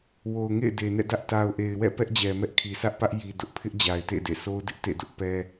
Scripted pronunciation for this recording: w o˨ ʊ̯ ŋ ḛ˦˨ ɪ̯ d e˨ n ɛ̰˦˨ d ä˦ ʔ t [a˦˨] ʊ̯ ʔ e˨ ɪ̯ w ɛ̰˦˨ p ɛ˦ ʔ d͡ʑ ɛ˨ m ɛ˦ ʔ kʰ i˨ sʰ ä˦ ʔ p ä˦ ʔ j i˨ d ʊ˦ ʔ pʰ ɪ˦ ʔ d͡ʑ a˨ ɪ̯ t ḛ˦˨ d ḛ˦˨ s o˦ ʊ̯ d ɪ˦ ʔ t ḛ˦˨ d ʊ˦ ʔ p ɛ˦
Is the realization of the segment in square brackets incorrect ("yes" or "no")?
yes